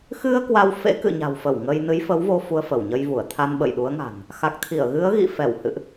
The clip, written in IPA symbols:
xɨ˧ə̯ kwa˧wfḛ˧˥ kɨ̰˧˨ɲa̤˨˩wfə˧˩w ŋə˧j nɨ˨˦jfə˨˦wvo˧ fu˧ə̯fə˧˩wɲə˧jvu˧˩ə̯ t̪ʰa˧nɓə̰˧˨jɗu˨˦ə̯ŋa̤˨˩n | xa˨˩k̚t̪ʰi˧˩ə̯ɣɨ˨˦ə̯ɣḭ˧˨ fɛ˧˩whɨ̰˧˨ʔ

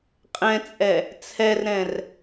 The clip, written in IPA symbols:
qʼɛ̃t͡sʼɛ | t͡sʰɛrɾɛ̃r

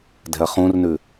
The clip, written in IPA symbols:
dɛ̤ɐ̯χũrnʉ

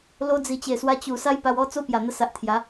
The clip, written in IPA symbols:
lo˧d͡zi˨˩t͡ɕe˨˩swa˧ t͡ɕu˨˩ sa˦jpa˧wɔ˦ t͡so˦pja˨˩n̪ə˧sa˨ʔ t̪ʰja˨˦

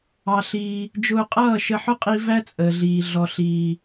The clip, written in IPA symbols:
ɑ˧ɬiː˧ | d͡ʒʊː˧qʼʌː˦˨ʃə˧ħʊ˦ qʼi˦ væ˦t͡sʼəː˨ɮiː˨ ɮɔ˨ɬiː˨

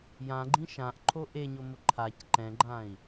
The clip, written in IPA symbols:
jãɡ͡ǃĩ ʃãʔǃʰo ʔeɲomʊ ǃʰac ǃɛ̃ɡ͡ǃãi̯

